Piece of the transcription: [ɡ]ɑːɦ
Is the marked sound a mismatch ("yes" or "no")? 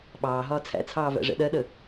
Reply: yes